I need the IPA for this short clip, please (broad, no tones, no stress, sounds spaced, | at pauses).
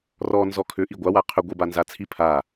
r ɔ n z ɔ kʰ ʏ ʔ i ɡʷ a w a qʰ ʏ ɡʷ i b a n z a t͡sʰ i pʰ a